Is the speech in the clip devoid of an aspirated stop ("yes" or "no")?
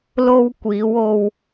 yes